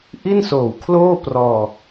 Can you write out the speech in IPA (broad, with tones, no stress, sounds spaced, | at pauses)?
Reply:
ʔ i˥˩ n s oː˨˩ w kʰ l oː˥˩ p r ɔː˧